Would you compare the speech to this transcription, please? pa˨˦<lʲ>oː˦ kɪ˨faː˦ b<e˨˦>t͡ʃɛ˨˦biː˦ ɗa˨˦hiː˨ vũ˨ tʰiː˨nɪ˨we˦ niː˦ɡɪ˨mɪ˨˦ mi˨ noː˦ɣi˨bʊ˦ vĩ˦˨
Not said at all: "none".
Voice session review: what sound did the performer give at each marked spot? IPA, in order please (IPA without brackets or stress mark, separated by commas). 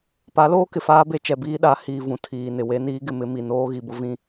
l, e˦